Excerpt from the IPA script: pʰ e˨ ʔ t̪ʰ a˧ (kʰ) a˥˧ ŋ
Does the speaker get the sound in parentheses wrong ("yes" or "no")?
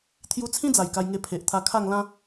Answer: no